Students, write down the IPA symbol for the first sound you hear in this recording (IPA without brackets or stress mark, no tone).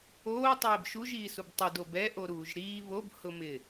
oː